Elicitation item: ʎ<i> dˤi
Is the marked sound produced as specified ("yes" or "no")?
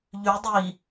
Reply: no